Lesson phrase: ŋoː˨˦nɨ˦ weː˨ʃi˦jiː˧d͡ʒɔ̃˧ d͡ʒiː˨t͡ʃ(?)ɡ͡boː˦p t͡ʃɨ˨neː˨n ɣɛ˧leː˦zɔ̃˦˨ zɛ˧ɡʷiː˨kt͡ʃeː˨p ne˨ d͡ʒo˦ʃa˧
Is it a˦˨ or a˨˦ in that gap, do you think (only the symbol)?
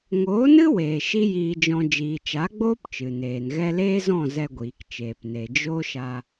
a˨˦